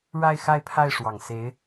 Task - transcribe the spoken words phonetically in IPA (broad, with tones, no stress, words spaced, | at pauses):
ɻa˥˧ɪ̯xa˥˧ɪ̯pʰa˥˩ɪ̯ ʂwɑ˨˩ŋse˧˥ɪ̯